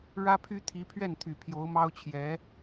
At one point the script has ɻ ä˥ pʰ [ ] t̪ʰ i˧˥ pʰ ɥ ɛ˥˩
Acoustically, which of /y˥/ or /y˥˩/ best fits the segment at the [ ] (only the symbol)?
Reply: y˥